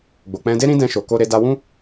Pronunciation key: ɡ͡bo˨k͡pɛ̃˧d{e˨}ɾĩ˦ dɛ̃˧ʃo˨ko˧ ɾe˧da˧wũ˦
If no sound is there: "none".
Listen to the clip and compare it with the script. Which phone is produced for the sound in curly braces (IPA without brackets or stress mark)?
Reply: e˦